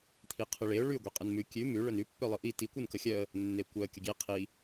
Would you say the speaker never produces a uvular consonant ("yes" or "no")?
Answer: no